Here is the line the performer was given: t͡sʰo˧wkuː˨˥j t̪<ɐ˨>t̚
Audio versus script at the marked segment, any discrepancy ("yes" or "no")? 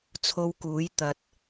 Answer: no